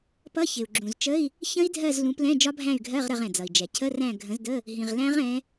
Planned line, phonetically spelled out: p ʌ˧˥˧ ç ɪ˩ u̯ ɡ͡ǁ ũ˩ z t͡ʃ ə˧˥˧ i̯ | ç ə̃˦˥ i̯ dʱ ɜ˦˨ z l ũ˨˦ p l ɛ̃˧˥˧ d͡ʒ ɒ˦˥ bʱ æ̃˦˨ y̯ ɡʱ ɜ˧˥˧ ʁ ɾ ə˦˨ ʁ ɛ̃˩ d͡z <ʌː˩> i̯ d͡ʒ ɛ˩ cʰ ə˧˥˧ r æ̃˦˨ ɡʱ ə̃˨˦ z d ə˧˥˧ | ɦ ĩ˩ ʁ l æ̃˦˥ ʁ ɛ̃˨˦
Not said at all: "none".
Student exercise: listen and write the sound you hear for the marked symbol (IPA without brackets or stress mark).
ʌ˩